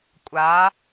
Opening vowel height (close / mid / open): open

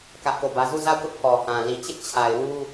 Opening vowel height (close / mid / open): open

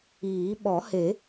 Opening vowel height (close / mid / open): close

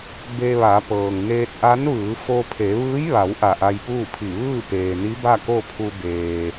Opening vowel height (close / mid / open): mid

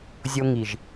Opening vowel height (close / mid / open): mid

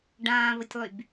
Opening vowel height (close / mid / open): open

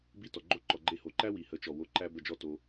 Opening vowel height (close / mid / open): close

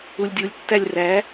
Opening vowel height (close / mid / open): close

